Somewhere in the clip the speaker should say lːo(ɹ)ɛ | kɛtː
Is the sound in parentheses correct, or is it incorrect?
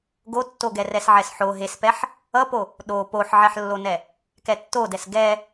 incorrect